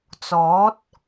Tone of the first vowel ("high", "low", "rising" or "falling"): rising